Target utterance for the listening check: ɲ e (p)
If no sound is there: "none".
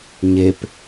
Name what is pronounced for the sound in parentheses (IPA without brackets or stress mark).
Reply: p